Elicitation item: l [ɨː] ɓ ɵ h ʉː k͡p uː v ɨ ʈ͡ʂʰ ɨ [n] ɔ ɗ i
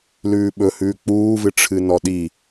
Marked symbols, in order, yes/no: no, yes

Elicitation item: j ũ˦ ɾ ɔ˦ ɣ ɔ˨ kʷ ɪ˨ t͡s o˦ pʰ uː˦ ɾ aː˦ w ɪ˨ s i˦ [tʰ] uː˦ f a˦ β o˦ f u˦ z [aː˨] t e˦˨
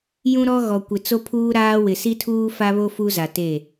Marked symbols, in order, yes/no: yes, no

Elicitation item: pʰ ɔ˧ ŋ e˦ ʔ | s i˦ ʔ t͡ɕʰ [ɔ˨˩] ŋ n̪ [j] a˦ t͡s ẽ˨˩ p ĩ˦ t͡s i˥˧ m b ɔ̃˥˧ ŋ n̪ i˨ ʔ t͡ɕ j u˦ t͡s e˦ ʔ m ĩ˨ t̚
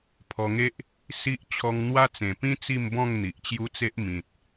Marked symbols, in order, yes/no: no, no

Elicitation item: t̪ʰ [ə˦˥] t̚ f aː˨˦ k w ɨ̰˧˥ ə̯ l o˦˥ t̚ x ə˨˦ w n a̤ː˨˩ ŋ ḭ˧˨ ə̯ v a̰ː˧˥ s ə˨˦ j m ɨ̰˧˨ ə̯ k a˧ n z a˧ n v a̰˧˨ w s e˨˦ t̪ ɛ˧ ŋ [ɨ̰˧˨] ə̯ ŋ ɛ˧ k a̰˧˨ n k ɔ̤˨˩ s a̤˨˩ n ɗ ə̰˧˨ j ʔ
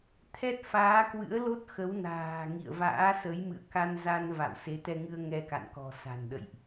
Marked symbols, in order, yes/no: no, no

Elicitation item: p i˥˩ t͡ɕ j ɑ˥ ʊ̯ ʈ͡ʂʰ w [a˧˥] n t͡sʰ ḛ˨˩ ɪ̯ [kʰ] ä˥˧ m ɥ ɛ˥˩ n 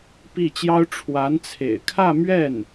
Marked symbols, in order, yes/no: yes, yes

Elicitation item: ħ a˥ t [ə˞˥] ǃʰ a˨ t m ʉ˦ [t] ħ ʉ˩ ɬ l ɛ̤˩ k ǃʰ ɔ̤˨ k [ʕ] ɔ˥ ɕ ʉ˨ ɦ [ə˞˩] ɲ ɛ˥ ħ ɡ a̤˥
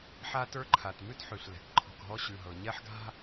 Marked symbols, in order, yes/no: yes, yes, no, no

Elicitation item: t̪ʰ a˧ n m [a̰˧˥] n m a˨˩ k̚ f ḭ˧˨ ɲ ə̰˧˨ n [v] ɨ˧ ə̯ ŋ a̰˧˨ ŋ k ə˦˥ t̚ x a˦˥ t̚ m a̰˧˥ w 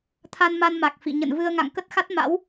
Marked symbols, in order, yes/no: no, yes

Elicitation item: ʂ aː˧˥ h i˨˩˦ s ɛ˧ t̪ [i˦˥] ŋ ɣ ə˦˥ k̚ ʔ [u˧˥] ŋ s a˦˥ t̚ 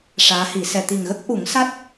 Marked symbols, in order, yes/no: no, no

